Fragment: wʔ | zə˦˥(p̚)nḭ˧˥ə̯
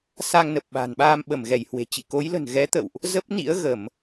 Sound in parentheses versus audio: correct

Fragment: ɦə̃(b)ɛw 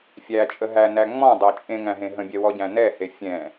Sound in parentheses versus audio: incorrect: bʲ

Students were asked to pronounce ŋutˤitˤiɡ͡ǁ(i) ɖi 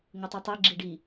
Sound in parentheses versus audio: correct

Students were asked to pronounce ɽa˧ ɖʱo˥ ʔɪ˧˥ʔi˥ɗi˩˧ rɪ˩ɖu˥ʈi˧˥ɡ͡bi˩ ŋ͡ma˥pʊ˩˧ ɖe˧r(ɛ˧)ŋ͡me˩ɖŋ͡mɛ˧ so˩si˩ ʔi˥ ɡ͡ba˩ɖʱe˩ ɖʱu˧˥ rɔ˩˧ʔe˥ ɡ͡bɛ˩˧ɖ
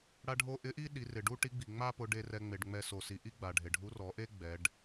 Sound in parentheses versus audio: correct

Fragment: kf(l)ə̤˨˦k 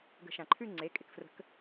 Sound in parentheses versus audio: incorrect: r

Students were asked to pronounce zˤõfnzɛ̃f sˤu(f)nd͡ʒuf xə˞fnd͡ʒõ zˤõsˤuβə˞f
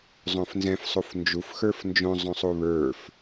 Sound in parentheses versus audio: correct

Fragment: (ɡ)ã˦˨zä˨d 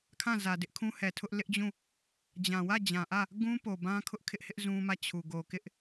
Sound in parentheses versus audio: incorrect: kʰ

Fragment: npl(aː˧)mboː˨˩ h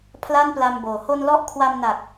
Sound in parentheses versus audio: incorrect: a˧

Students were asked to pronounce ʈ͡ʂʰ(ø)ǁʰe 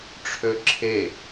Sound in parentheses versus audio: correct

